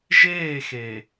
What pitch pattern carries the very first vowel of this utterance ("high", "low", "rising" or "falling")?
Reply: falling